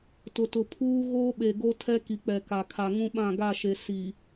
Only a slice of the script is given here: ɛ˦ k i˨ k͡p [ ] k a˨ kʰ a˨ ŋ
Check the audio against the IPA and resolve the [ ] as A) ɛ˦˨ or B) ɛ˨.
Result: B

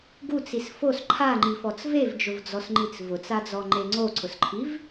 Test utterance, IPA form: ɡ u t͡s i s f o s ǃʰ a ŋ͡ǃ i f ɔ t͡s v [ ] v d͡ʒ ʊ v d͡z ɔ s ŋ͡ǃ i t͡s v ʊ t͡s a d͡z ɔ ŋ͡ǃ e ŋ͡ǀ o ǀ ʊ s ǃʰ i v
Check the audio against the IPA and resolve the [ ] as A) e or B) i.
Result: A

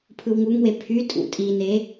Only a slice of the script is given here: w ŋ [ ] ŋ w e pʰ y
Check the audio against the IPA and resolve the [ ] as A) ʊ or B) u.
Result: B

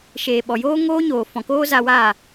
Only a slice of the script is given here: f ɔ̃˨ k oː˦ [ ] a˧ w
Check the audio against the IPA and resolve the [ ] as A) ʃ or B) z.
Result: B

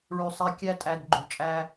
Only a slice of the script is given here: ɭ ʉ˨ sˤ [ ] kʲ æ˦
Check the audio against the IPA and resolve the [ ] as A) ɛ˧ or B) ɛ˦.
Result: A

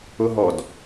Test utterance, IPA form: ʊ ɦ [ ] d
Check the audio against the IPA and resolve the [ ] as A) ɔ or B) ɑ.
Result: A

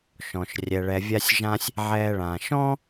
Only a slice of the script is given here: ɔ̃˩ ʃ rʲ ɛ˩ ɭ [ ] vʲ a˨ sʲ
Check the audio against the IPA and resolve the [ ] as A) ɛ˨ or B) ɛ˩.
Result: B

